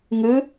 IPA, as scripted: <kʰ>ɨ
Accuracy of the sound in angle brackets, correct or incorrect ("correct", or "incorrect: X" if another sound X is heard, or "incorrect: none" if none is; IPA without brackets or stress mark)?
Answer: incorrect: ŋ